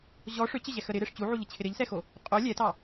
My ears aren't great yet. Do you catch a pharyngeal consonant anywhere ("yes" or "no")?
yes